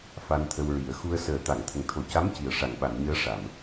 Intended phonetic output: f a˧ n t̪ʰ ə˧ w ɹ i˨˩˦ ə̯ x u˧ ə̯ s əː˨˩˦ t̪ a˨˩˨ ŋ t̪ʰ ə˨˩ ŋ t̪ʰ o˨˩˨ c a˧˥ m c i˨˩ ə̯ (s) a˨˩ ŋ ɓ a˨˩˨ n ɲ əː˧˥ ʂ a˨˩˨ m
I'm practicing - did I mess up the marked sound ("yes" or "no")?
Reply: yes